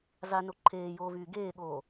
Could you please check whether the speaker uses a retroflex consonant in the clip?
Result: no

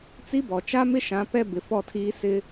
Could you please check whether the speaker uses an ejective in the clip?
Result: no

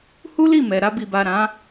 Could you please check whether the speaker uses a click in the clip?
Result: no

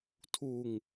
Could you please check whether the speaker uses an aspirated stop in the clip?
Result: yes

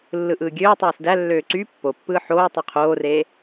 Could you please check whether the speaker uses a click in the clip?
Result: yes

